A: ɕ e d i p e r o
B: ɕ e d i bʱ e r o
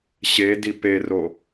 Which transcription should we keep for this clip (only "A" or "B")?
A